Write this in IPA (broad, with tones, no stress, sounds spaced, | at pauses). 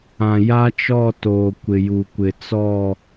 ã˨ j a˦ t͡ʃ ɔ˦˨ t oː˨ kʷ ɪ˨ j u˨ kʷ ɪ˨ t͡s ɔ˦˨